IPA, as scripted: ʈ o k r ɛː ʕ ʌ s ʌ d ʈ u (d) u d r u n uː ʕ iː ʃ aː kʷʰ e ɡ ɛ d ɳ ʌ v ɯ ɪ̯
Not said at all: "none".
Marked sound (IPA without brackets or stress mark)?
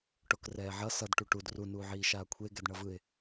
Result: ʈ